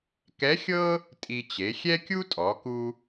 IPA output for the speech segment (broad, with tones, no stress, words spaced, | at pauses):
kɛ˧˥xʲɤ˥ | tʼi˧t͡ɕe˩˧xʲɛ˥ kʲu˥tʼɔ˩˧ku˧